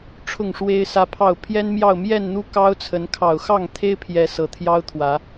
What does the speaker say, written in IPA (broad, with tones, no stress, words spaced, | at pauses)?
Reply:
ʈ͡ʂʰʊ˥˨ŋʂwe˦ɪ̯sä˦pʰɑ˥˨ʊ̯ pʰjɛ˦nmjɑ˥˨ʊ̯ mjɛ˥˨nn̪u˦ kɑ˦ʊ̯t͡sʰə˨˦nkʰɑ˨˩ʊ̯ xɑ˥˨ŋt̪ʰe˦ɪ̯pʰjɛ˨˦ sɤ˨˦t̪ʰjɑ˦ʊ̯t̪ʰwä˨˦